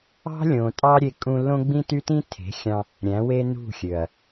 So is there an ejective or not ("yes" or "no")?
yes